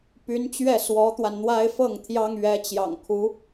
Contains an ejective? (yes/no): no